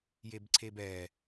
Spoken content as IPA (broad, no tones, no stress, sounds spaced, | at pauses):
j e b ǀʰ e b ɛ